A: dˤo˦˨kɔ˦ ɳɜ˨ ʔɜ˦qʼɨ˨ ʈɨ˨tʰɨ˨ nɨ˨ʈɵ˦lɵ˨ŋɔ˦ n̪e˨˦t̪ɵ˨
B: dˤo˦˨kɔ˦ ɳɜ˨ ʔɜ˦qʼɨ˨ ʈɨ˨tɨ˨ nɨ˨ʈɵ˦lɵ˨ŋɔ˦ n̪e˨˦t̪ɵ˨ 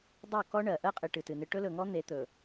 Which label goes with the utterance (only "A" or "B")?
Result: B